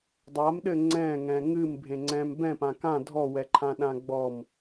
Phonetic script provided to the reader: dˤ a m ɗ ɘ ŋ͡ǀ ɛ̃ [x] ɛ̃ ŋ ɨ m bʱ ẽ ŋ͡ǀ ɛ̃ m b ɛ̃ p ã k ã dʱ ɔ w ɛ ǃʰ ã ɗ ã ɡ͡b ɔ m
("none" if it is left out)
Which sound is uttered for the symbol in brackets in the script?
ŋ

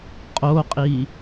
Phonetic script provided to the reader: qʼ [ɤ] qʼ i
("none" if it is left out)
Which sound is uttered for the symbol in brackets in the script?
o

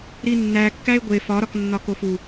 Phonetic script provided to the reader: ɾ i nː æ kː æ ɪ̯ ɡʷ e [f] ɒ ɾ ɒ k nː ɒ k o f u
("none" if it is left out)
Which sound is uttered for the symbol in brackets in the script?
f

